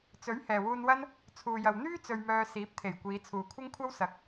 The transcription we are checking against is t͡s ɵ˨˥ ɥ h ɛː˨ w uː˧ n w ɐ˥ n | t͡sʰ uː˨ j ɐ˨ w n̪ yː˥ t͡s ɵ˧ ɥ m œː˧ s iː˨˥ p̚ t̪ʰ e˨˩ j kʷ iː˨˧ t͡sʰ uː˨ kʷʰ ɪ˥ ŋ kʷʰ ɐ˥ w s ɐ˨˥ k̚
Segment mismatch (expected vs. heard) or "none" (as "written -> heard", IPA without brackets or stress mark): none